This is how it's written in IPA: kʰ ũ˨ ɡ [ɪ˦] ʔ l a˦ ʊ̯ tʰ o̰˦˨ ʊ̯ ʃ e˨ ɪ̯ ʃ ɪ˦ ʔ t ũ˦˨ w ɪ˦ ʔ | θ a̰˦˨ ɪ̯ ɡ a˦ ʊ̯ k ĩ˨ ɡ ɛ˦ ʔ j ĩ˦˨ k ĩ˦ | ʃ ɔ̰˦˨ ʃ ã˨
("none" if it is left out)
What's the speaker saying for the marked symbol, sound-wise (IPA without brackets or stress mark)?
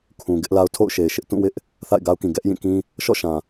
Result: ɪ˦